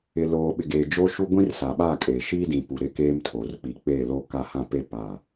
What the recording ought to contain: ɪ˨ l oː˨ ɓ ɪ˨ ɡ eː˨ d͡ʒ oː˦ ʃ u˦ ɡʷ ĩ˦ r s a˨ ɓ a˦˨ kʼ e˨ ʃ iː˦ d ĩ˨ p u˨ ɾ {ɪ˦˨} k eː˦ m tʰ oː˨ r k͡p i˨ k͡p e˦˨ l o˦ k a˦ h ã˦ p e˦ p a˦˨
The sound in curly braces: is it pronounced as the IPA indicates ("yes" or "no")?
yes